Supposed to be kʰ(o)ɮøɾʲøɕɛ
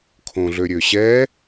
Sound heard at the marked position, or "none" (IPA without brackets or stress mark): õ